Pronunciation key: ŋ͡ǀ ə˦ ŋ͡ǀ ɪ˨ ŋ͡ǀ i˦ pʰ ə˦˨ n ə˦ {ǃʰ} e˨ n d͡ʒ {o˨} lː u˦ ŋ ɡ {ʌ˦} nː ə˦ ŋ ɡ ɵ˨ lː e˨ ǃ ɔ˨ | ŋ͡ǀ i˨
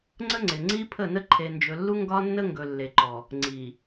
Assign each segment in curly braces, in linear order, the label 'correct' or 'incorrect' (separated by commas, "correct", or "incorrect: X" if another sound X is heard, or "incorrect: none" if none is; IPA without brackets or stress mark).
correct, incorrect: ɵ˨, incorrect: ɒ˦